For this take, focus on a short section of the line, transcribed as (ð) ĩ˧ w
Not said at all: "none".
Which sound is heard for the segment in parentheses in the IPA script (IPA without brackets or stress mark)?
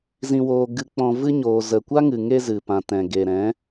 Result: z